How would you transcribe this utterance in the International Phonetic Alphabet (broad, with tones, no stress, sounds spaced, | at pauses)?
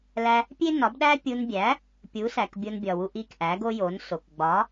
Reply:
l æ˧ | pʲ e˥ n ɒ˩˥ b ɗ æ˥ pʲ u˧ n bʲ æ˩˥ | pʲ u˩˥ s æ˩ k bʲ o˧ n bʲ ɒ˩ w u˧ ʔ i˧ k ʔ æ˩˥ ɡ o˥ j o˩˥ n s o˩ k ɡ͡b ɒ˩˥